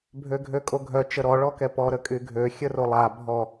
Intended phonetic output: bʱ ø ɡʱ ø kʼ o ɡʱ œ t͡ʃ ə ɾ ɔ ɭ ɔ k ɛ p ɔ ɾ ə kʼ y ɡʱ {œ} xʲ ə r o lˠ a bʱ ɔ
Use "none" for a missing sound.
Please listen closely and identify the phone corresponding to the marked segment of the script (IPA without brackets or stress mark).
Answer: ø